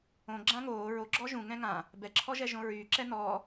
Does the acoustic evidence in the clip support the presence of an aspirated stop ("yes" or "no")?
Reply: yes